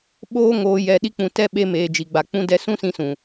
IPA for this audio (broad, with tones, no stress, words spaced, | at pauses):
ɓoː˦ŋoː˧ jɛ˨ɗi˧k͡pũ˨tɛ˧ ɓe˧meː˨ d͡ʒi˨ɡ͡ba˨ k͡pũ˧ dɛ˧sũ˦sĩ˧sũ˨